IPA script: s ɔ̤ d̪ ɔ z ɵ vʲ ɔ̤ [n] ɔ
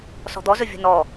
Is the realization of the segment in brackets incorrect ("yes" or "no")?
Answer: no